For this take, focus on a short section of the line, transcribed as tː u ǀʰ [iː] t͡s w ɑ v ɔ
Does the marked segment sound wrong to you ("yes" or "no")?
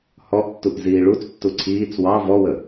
no